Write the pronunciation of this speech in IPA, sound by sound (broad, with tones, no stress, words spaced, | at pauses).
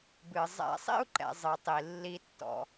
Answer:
bɨ˩ zˤɛ̰˨˩˦ sˤḭ˥˨u̯ǃɛ̰˩ zˤɨ˩tˤi˩ lːi˨˩˦tːɔ̰˩